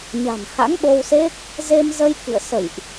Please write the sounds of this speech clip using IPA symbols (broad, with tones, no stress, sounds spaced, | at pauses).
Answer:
ɲ a̤˨˩ n h a̰˧˥ ŋ ɓ o˧ w s e˦˥ k̚ | z e˧ m z ə˧ j k ḭ˧˨ ə̯ s ə̰˧˨ j ʔ